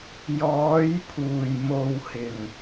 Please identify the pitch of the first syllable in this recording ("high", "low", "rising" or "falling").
rising